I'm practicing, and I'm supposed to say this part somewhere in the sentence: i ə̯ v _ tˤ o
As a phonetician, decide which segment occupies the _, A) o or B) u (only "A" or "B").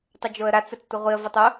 A